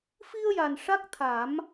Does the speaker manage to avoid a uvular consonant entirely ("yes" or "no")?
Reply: yes